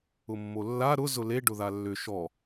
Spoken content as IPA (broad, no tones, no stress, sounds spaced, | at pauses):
ʊ mː o lː a ɾ ʊ z ʊ l e ɖ ʊ ð a lː ʏ ʃ ɔ